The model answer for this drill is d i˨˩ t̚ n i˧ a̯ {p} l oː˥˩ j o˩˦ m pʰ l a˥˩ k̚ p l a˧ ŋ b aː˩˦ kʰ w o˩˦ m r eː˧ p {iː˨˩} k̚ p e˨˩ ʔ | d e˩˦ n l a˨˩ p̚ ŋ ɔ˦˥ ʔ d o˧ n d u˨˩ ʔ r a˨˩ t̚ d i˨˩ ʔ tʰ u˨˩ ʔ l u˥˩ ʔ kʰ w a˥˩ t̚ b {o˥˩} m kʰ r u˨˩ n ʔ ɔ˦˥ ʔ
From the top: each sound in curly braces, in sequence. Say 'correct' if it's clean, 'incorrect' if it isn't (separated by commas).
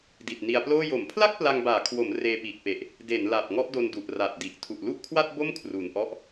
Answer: correct, correct, correct